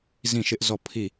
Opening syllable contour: falling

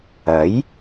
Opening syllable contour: rising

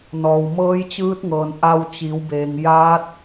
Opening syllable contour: low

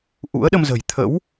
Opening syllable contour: rising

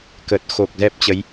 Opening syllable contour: low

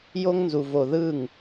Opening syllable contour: high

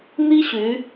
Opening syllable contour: high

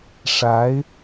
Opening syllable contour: rising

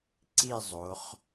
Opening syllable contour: falling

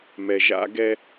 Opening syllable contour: low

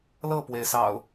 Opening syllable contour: falling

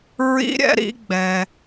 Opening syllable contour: high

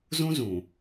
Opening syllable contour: high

